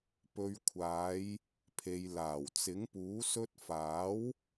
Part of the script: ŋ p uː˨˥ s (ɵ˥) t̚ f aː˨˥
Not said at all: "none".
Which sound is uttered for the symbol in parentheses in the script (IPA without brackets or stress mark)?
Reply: ɵ˥